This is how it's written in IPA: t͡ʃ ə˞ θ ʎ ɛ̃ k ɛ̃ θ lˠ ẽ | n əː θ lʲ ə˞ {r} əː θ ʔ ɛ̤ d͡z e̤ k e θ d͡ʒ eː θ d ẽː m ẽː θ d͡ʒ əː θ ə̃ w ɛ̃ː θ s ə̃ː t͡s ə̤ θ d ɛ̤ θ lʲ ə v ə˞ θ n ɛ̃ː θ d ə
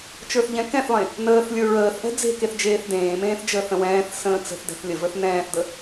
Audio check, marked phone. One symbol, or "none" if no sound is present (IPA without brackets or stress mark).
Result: ɹ